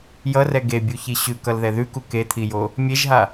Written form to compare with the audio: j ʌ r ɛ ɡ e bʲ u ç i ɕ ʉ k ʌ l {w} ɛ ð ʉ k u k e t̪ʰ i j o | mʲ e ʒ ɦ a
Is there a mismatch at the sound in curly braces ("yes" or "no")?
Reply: yes